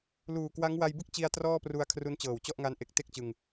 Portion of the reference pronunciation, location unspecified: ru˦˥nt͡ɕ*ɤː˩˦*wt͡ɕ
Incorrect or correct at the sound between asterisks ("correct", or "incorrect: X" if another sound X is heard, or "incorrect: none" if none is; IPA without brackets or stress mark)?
incorrect: ɤː˨˩